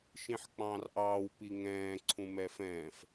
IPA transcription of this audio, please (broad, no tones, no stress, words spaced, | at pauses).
ʃĩħk͡pɑ̃ːrʔɑːw piŋɛ̃ː ǀʰũmɛfɛ̃ːf